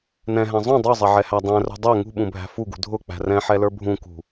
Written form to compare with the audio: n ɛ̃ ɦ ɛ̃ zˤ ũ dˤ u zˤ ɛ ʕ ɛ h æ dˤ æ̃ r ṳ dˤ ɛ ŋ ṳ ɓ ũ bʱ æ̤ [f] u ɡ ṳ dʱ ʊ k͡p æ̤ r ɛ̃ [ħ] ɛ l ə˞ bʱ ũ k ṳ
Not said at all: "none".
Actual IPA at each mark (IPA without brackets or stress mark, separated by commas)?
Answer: f, ħ